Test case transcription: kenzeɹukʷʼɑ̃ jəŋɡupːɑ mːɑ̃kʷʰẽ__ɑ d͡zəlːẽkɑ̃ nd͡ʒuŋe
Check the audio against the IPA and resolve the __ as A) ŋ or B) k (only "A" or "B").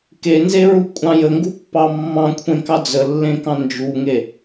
B